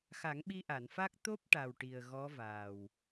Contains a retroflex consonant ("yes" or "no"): yes